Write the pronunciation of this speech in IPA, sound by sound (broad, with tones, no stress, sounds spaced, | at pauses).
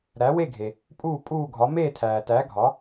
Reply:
ɾ æ˩˥ w e˥˩ ɡʱ e˩ | pʼ uː˥˩ pʼ uː˥˩ ɡʱ ɒ˩˥ m eː˥˩ tʰ æː˩ t æ˩˥ ɡʱ ɒ˩˥